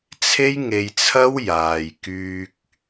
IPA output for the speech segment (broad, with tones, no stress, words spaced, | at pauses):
t͡sʰe˥jŋe˧jt͡sʰɐ˥w jaː˨jkyː˧k̚